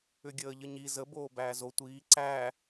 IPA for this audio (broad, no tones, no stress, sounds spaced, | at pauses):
ʏ ɡʲ əː ʎ ə ɲ i z ə b oː b æː z o tʷ iː ǀ æ